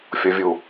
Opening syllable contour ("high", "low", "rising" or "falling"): low